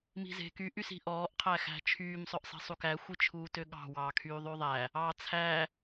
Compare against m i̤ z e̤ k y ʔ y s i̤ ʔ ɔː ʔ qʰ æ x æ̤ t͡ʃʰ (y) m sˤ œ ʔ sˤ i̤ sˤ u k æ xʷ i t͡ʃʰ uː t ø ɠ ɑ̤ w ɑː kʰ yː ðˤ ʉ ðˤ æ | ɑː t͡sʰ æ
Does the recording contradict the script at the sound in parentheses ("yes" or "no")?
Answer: yes